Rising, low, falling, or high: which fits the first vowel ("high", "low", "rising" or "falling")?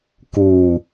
low